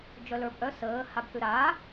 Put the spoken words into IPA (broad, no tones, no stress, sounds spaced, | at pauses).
d͡ʒ œ l ə˞ b ʔ œ s əː h a b θ ʉ ɾ a